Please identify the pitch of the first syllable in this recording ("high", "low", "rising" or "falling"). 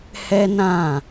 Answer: high